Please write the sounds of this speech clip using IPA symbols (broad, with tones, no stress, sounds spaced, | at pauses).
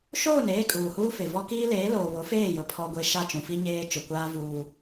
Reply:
ʃ oː˦˨ n eː˦ kʼ uː˨ h uː˦ f ɪ˨ v ɔ˦ k iː˦ l eː˨˦ l oː˨ β o˨˦ f eː˦˨ j ʊ˨ pʰ ɔ˦ ɡʷ e˦ ʃ a˦˨ t͡ʃ ũ˨ f i˦ ɲ eː˦ t͡ʃ ʊ˨ kʷ aː˦ v uː˦